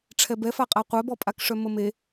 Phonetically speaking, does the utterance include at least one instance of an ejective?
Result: yes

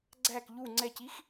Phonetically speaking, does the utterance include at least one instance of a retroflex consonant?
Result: no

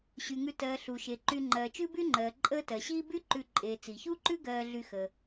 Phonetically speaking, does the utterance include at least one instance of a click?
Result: yes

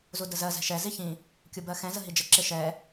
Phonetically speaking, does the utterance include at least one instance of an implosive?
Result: no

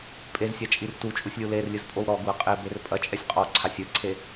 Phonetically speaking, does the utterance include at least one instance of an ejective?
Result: yes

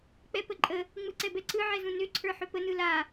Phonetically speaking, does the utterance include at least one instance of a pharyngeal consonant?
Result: yes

